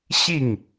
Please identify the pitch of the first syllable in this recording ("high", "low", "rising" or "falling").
falling